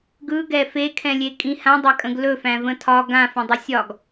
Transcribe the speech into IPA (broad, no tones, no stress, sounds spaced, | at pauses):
ɡ ɯ ɡ ɛ f e kʰ ɛ̃ lʲ e kʼ ĩ h ã dˤ a kʼ ə̃ ɡ l ɵ f æ̃ v ə̃ tʰ ɒ ɡ ã f ə̃ dˤ ə sʲ ɒ ɡ